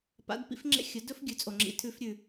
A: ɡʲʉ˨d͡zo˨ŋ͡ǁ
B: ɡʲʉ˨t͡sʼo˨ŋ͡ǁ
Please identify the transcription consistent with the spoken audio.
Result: B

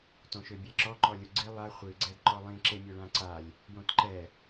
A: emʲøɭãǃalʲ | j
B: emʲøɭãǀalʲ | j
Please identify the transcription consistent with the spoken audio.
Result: B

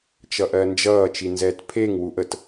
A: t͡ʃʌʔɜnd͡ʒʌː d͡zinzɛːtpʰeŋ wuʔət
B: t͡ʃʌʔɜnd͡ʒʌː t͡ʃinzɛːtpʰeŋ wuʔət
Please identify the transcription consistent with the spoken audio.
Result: B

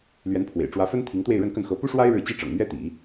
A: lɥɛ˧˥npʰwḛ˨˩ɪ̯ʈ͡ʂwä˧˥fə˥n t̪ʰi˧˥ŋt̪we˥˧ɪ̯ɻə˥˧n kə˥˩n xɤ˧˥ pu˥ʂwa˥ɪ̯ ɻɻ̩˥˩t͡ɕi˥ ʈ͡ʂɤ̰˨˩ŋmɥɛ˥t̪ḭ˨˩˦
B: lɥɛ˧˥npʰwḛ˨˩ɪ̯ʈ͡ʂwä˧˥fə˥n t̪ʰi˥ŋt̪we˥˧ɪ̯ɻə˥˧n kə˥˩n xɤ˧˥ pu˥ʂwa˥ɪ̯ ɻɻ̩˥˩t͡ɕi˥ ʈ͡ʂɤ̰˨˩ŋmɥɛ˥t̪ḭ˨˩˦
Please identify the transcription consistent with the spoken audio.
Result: A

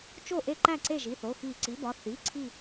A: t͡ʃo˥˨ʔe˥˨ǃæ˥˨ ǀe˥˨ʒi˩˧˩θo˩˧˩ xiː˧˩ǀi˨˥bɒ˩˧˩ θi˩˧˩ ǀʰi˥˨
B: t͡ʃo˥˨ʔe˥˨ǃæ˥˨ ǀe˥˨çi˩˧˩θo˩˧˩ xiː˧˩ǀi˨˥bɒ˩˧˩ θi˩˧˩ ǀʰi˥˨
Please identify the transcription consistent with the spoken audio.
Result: A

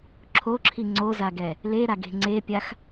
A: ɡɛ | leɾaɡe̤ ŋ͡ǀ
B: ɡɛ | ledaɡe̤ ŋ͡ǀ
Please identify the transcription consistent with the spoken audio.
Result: A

